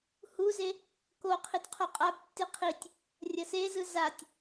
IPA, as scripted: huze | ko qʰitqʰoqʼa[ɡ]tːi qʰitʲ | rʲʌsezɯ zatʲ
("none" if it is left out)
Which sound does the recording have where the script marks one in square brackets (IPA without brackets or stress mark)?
b